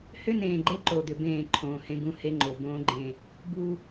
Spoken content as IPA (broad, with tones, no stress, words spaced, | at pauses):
hʏ˦nẽː˨ɡ͡ǃe˦ ǃo˨d̪ʏ˨ bẽː˦˨ǃʰõː˨hẽ˦ɡũ˦ he˦ŋ͡ǃo˨ bõː˦ɡ͡ǃẽ˦˨ | bu˦